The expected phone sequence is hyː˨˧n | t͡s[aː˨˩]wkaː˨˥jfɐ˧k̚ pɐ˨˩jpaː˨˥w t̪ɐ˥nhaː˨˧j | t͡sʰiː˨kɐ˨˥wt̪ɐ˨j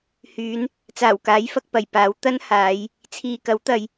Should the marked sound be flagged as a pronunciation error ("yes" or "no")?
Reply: no